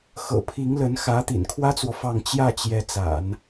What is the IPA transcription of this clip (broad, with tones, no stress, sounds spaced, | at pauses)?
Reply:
x ɤ̰˨˩ pʰ i˧˥ ŋ l ə˧˥ n x ä˧˥ t̪ ḭ˨˩ n kʰ w ä˥ t͡s w ɔ˨ f ɑ˥˧ ŋ t͡ɕ j ä˥˩ t͡ɕ j ɛ˧˥ t͡s a̰˨˩˦ n